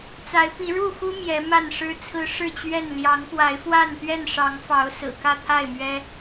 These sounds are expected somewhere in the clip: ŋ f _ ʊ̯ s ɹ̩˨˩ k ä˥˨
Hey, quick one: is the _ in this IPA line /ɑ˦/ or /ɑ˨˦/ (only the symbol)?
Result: ɑ˨˦